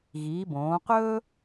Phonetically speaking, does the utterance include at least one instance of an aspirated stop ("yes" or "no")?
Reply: no